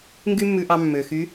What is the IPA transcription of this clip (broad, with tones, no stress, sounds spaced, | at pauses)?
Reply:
ŋ ɡ y˥ mː ʉ˧ ʔ ɑ˧ mː ø˩ x y˧˥